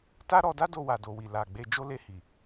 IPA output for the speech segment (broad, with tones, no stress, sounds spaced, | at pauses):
t a˦ ɾ ɔ˧ d a˦ d o˧ w a˨ d o˨ w i˨ l a˨ ɡ͡b e˧ d͡ʒ o˦ l e˧ h i˨